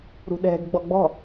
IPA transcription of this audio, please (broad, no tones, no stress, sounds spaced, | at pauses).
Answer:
ɾ ṳ ɗ ɛ̤ ɡ ɡ͡b ɔ ɡ͡b ɔ̤